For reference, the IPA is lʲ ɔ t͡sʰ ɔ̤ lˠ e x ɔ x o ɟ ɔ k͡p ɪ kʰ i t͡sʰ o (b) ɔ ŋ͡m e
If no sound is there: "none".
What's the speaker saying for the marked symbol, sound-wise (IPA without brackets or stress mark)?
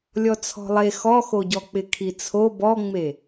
b